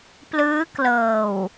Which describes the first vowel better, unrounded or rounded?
unrounded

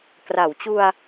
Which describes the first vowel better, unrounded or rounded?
unrounded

